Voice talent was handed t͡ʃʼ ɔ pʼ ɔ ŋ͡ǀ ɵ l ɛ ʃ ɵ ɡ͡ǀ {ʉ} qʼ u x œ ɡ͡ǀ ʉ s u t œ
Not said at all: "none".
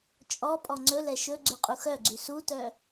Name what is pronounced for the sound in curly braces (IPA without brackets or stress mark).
ʉ